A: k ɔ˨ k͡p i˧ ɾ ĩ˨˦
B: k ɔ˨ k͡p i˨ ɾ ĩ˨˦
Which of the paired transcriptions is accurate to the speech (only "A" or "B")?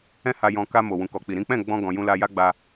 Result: B